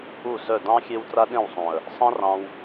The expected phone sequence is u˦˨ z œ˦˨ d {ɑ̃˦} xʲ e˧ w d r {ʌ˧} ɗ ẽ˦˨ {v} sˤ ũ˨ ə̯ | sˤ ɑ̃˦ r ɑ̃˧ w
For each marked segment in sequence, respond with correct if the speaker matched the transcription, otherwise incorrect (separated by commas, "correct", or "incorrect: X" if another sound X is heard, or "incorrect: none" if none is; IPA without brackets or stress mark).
correct, incorrect: a˧, incorrect: w